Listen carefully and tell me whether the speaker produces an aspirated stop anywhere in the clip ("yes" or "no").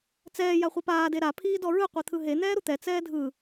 yes